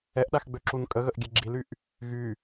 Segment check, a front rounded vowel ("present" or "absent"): present